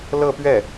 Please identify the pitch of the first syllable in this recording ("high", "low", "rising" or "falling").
falling